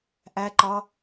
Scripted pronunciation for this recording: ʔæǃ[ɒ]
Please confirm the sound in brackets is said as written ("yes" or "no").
yes